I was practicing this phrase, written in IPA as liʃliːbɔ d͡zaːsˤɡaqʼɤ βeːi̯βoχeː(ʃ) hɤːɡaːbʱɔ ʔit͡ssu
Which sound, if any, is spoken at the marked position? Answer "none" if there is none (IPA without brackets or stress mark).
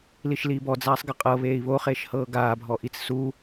ʃ